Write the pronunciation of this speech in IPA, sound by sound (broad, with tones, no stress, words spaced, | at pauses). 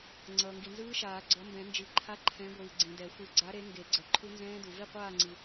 ŋ͡ǀʌː˨ŋɡi˨nzɯː˦˥ʃaː˨˩˦ ɡ͡ǀʌ˨˥mbɛ̃˨˩˦nd͡ʒi˨˩˦ ǃʰa˦˥ǃʰɛ̃˨˥ɡʷɯː˨ ɡ͡ǀĩ˨dɛ˨˩˦xʷɯ˨˥ ɡ͡ǀa˨˥ɾe˨˥ ŋɡe˨˩˦ɡ͡ǀʌ˨ ǃʰu˦˥nzɛ̃ː˦˥du˨ vi˥˨qʷaː˥˨ŋ͡ǀi˨